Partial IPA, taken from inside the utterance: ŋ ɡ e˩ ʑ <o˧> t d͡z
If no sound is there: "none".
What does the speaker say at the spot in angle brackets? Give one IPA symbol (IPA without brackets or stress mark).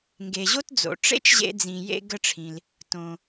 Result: o˥